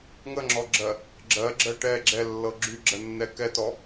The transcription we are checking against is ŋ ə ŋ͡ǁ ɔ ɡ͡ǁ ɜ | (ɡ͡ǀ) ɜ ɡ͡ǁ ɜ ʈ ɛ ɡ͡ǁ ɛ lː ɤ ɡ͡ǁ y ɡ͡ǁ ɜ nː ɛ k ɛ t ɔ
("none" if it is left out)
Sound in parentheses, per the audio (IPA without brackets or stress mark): ɡ͡ǁ